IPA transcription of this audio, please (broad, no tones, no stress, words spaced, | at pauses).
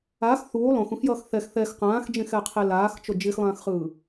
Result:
ax θuː lˠõxũxjʌːx θɛx θɛx qãːxd͡ʒẽxɛqʰe laːxt͡ʃo d͡ʒixlˠãːxχɯː